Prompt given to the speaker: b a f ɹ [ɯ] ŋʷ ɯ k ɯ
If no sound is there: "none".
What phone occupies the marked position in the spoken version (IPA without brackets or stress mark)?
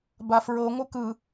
ɤ